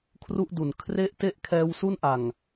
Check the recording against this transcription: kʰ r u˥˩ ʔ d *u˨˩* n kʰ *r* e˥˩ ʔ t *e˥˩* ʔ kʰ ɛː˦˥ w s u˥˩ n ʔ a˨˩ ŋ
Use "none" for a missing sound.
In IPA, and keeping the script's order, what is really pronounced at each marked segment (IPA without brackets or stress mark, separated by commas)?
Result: u˨˩, r, e˥˩